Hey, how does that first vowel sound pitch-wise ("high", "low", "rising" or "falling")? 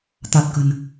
low